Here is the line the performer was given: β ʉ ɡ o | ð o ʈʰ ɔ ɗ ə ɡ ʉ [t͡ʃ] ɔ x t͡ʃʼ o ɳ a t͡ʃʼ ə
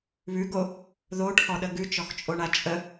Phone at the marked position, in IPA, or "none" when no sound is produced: t͡ʃ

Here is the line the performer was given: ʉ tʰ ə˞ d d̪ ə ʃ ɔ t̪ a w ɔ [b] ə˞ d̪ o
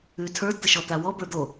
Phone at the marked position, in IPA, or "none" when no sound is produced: b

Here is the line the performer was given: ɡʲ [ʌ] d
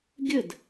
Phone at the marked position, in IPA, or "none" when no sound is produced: ə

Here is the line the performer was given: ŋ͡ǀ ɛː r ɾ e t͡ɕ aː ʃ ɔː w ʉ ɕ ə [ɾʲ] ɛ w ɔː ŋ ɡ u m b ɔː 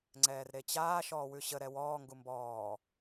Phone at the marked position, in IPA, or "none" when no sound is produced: ɾ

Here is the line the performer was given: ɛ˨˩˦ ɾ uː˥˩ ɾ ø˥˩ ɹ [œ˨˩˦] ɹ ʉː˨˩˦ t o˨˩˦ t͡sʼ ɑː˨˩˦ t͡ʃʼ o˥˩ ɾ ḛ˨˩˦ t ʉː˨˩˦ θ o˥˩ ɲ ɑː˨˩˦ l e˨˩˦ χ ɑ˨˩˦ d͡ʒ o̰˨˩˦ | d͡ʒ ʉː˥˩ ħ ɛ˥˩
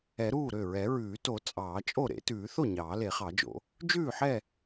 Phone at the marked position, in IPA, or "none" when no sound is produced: ɛ˨˩˦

